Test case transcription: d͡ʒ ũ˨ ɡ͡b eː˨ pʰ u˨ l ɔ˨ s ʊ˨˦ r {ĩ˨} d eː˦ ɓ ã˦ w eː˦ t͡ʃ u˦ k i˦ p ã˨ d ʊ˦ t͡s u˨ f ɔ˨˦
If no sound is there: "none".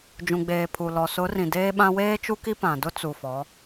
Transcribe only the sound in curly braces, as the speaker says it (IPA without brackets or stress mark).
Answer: ĩ˨